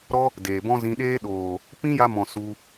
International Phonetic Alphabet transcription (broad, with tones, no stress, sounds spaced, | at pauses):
ɾ ɔ˦ | d eː˨ b ɔ̃˦ z ĩ˧ ɗ eː˦ ɗ oː˨ | p ĩ˦ j a˧ m ɔ̃˨ s u˧